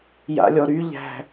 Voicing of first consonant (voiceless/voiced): voiced